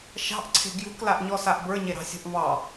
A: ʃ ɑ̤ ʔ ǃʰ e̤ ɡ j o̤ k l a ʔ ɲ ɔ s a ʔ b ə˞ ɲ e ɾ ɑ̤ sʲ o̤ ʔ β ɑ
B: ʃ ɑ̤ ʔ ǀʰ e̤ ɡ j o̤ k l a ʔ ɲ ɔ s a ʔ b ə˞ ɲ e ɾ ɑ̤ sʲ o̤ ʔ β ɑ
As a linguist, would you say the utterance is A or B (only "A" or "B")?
B